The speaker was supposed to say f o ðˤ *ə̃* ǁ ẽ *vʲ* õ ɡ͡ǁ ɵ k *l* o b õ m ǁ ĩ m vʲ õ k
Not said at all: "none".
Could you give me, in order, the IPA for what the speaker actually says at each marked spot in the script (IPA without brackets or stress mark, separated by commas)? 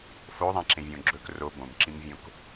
ã, vʲ, r